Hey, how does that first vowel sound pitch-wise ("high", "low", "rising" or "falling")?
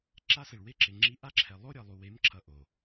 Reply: high